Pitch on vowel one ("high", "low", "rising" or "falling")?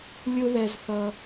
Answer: high